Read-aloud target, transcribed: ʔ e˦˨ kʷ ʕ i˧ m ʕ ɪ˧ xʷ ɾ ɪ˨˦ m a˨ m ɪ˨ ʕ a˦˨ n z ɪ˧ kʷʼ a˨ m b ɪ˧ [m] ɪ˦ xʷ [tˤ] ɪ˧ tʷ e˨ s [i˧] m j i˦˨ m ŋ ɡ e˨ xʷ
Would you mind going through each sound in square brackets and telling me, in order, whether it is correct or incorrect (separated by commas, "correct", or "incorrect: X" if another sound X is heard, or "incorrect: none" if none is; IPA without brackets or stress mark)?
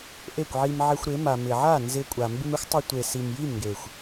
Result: correct, correct, incorrect: i˨